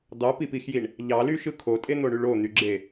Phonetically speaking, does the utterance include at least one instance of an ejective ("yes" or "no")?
yes